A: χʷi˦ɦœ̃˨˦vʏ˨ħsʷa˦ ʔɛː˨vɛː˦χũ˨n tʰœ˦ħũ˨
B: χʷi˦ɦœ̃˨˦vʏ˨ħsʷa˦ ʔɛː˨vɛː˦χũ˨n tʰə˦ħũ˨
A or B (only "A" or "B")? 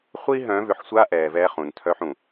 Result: A